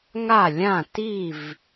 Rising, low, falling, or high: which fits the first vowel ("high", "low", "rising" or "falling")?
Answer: falling